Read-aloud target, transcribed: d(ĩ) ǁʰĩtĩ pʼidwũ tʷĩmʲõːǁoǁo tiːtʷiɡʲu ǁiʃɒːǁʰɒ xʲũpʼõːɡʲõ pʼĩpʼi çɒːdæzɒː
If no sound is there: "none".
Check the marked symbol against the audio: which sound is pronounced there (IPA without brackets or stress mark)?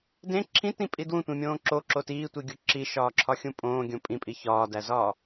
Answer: ẽ